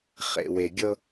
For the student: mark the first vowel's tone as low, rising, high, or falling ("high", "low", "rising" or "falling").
low